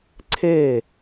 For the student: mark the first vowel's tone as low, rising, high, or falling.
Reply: falling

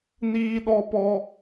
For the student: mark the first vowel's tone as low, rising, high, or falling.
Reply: high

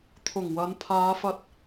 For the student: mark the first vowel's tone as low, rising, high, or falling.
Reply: low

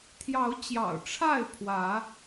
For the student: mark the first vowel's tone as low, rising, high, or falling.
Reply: rising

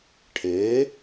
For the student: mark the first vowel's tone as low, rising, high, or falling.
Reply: rising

